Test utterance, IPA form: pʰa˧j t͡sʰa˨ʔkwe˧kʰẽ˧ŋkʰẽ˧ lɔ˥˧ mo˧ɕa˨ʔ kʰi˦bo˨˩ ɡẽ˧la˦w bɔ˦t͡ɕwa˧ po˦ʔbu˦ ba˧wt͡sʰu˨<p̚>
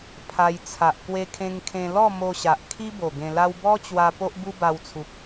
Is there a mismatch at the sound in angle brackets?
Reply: no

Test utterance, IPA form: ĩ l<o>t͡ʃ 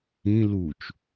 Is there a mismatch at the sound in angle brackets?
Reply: yes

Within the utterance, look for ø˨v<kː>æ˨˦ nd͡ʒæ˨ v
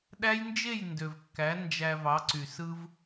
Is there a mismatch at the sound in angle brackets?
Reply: no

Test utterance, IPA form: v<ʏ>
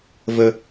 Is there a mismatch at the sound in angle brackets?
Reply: yes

